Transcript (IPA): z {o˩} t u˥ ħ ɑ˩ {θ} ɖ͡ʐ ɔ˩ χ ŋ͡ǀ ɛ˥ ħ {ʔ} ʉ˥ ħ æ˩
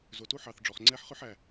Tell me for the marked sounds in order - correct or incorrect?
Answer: correct, correct, incorrect: χ

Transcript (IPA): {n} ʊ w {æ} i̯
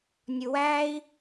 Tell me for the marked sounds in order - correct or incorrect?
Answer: incorrect: nʲ, correct

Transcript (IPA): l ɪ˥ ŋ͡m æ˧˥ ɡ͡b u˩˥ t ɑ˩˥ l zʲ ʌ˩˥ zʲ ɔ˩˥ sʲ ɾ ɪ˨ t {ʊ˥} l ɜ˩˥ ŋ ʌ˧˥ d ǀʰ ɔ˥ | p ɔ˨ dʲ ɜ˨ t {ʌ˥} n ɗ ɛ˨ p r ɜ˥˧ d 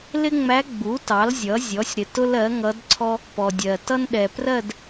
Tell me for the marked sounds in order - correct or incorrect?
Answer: correct, correct

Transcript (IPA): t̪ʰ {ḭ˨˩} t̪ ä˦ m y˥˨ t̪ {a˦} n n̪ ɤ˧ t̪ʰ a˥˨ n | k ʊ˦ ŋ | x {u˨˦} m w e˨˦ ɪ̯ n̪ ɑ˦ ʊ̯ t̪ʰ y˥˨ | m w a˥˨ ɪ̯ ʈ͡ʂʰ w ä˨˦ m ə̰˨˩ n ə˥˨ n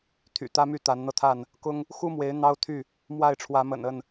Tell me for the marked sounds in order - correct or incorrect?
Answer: incorrect: y̰˨˩, incorrect: a˨˦, incorrect: u˦

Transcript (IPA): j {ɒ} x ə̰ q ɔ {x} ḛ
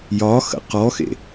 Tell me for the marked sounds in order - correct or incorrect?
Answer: correct, correct

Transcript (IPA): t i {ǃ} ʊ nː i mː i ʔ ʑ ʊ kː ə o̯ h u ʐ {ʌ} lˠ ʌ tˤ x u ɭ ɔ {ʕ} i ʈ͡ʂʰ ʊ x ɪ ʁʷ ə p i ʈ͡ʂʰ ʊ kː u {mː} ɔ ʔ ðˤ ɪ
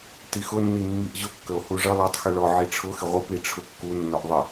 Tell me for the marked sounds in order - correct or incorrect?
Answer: incorrect: x, incorrect: ə, correct, incorrect: nː

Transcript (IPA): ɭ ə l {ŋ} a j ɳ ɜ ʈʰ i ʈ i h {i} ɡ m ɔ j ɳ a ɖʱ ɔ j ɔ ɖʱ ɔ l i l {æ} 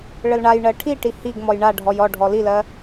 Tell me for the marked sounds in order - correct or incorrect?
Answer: incorrect: ɳ, correct, incorrect: ɜ

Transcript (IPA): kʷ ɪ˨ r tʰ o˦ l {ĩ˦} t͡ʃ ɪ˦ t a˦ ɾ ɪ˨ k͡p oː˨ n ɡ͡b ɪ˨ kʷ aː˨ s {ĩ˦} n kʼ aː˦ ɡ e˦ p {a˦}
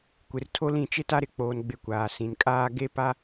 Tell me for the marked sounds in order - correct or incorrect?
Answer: incorrect: ĩ˦˨, incorrect: ĩ˨, correct

